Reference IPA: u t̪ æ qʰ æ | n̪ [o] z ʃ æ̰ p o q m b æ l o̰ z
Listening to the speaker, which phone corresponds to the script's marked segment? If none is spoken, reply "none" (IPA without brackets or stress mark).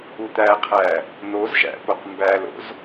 o